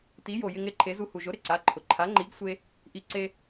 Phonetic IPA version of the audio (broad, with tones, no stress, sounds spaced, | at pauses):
t i˩˥ j o˩ j ɪ˧ ŋ ɾ ɪ˩˧˩ ǃʰ e˩˥ z u˧ h u˩ ʒ ʊ˩˥ ɾ ɪ˩ ǀ a˩˧˩ ǃʰ ʊ˩ ǃʰ a˩˥ ŋ͡ǃ i˩˥ ɡ sʷ e˧ | ʔ i˧ ǀ e˧